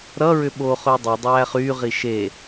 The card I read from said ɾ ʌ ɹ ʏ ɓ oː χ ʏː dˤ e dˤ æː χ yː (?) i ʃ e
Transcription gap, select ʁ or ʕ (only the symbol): ʁ